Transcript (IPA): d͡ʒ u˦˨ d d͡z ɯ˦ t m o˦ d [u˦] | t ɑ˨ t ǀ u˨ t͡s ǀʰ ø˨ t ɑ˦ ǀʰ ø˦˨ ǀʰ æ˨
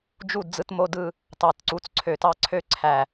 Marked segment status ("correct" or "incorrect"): incorrect